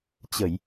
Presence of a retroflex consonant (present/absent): absent